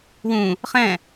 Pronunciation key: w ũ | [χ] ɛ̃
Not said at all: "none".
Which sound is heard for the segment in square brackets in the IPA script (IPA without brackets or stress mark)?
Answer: χ